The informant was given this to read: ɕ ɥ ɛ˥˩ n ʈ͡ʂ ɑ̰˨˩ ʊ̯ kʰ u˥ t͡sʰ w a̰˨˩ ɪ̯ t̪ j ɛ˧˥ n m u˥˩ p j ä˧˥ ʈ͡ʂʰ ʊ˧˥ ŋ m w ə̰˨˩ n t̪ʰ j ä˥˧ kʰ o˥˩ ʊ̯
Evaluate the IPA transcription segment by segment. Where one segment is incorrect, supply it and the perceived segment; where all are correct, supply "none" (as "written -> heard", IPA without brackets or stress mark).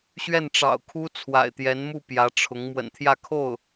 none